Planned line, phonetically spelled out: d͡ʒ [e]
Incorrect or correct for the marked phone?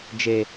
correct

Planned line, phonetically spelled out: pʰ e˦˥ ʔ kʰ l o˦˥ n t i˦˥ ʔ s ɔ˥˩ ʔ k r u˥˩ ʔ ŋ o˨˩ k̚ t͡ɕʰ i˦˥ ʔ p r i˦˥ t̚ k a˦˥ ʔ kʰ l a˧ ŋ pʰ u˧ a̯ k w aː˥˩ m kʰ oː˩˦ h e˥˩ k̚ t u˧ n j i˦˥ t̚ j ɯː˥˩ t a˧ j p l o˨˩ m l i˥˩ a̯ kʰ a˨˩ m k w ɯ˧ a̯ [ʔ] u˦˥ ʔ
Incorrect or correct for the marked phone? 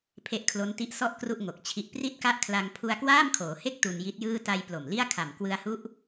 incorrect: h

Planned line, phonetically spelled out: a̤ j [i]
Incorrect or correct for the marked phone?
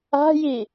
correct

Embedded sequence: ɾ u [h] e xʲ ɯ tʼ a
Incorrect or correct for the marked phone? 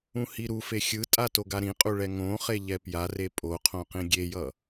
incorrect: f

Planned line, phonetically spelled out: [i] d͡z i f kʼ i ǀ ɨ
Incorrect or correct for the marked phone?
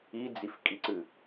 correct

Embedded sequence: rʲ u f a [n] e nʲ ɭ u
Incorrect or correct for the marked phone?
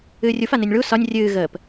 correct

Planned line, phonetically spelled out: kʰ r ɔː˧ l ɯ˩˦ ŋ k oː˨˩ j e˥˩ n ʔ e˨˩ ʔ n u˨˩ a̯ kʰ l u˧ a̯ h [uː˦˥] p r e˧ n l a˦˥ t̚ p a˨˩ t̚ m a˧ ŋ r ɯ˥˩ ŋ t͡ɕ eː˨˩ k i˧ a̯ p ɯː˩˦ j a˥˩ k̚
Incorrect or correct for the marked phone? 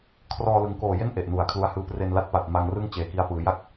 incorrect: ɯː˦˥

